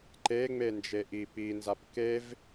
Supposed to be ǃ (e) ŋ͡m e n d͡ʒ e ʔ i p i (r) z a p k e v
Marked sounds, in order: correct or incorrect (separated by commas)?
correct, incorrect